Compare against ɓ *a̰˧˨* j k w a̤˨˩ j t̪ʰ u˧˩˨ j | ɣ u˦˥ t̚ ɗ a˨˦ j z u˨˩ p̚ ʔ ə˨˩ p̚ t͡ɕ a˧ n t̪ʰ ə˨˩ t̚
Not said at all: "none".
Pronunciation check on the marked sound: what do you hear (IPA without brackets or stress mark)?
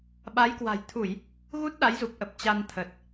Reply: a˨˦